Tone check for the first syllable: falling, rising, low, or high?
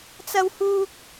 high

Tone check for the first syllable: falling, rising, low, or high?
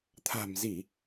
low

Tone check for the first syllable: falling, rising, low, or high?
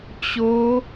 rising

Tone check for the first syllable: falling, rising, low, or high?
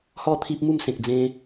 falling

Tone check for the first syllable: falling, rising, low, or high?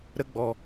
high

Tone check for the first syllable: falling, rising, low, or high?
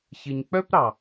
low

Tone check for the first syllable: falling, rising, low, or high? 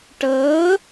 rising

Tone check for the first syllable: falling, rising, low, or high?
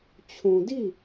low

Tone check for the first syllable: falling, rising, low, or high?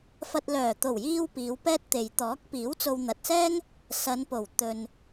low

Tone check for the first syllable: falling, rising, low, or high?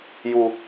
low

